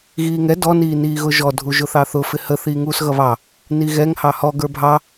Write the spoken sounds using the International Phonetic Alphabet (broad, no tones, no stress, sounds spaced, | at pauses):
ɣ iː ŋ ɛ d ɔ n iː n iː ɣ ʊ ʒ ɔ dʱ u ʒ ʊ θ ɑ θ ʊ f ɪ h ə θ iː ŋ uː s ɣ ʌ β ɑ | n i ɣ ɛ ŋ h ɑ h ɔ ɡ ə˞ bʱ ɑ